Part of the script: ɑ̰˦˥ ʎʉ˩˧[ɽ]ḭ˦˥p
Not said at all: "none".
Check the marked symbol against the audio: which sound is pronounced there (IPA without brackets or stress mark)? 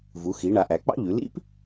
l